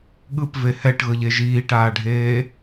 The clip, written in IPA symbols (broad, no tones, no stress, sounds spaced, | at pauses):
ɠ ɯ p v e h ɛ ʈ ɣ ɤ ʎ e ʒ iː ʈ aː ɖʱ eː